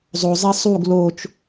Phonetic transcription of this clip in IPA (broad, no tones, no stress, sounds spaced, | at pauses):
zˤ o zˤ i sˤ u ɡ l o t͡ʃ